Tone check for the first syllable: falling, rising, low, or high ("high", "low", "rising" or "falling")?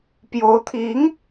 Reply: rising